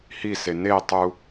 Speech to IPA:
h i s e n e tˤ u

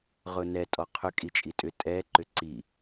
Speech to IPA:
ʁ ʊ n ɛ tʼ ɔ qʰ ʏ kʼ i t͡ʃʼ i tʼ ʏ tʼ ɛ ǃ ʏ ǀ i

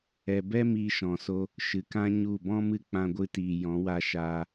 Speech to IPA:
ɛ˧ b ɛ˦ m iː˧ ʃ ɔ̃˨ s o˧ | ʃ ɨ˨ k ã˦ ɲ u˦˨ b ɔ̃˦ m ɨ˦ k͡p ã˧ ɡʷ ɨ˧ t iː˨ j ɔ̃˨˦ w a˧ ʃ aː˧

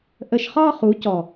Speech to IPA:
ʔ ə˧ ʃ χ ɒ˦ χ u˨˦ c ɔ˨

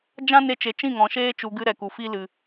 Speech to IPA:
d͡ʒ ã˦ n e˧ t͡ʃ e˨ t͡ʃ ĩ˦˨ ŋ ɔ̃˨ ʃ eː˦ t͡ʃ u˧ ɡ ɨ˦ ɾ ɛ˨ k u˨ f i˧ l ɨ˨

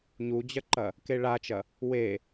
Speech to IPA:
ɲ u d͡ʑ ɐ ǃ ɐ | k e ɭ a t͡ʃ ɐ | w e

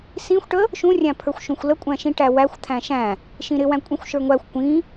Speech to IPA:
s ĩ xʷ ʈ ə | ʃ ũ rʲ æ̃ pʰ ə˞ xʷ ʃ ũ xʷ l ə kʷʼ æ̃ ʃ ĩ ʈ æ w æ xʷ t̪ʰ æ̃ ʃ æ̃ | ʃ ĩ ɾ ɪ w æ̃ kʷʼ ĩ xʷ ʃ ə˞ ŋʷ æ xʷ kʷ ĩ

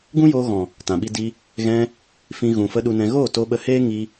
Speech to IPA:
ɡ ũ˦ j oː˧ ɣ ɔ̃˨ | t ã˨ ɓ i˧ d i˧ | ɣ ɛ̃˧ | f ĩ˧ ɣ ũ˨ f ə˧ ɗ u˧ n ɛ̃˧ ɣ oː˦˨ t o˦ ɓ ə˧ h eː˦ ŋ i˧

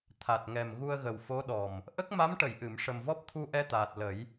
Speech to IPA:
t̪ʰ a˨˩ t̚ ŋ ɛ˨˩ m ɣ u˧ ə̯ ɣ ə˨˩ w f o˧˥ ɗ ɔ˨˩ m | ʔ ə˦˥ k̚ m a˧˥ m ʈ ə˨˩˨ j ʔ ɨ˨˩˨ m ʂ ə˨˩ m v ɔ˦˥ p̚ t̪ʰ u˧ ʔ ɛ˧ t̪ aː˨˩ t̚ l ə˨˩˦ j

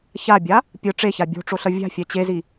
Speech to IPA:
ç a bʲ a | pʲ ɯ ʈ͡ʂ e ç a bʲ o̤ ʈ͡ʂ o ɬ ʌ vʲ a̤ fʲ ɛ t͡ɕ e z i

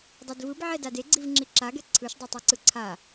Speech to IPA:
dˤ e d v ɯ b ʕ ɛ d a d e ɡ͡ǀ i v ŋ͡ǁ i ǁ a ɡ ɛ ǀʰ ɯ ʃ dˤ o tˤ o ǀ ɯ ǀʰ a

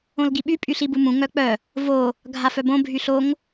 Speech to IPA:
õ l ɡ i ɓ y pʼ y ɬ i b u m ũ ŋ œ k͡p œ | v o | ɡʱ a f œ b õ bʱ y ɬ o ŋ

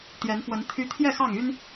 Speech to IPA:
t̪ j ɛ˨˦ n f w ə˨˦ n t̪ʰ y˦ t̪ʰ j ɛ˥˨ x ɑ˥˨ ŋ y˦ n

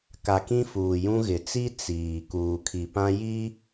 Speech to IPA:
k a˨ k ĩ˦ f uː˨ j ũ˦ ɣ ɪ˨ t͡s i˦ t͡s iː˨ k uː˨ kʰ i˨ p ã˦ j i˦

